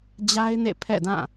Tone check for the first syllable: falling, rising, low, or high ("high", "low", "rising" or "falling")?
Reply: high